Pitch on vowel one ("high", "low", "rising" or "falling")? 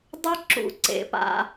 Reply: high